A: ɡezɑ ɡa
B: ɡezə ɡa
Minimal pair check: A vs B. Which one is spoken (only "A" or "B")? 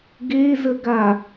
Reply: B